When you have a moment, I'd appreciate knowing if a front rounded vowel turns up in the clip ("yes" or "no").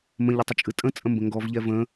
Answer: no